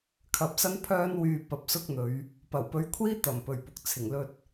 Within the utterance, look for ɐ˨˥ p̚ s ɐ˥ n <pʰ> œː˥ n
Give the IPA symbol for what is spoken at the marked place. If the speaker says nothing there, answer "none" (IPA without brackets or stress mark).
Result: pʰ